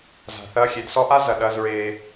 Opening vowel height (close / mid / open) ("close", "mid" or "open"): open